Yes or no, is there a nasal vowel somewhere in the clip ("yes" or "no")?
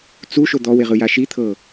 no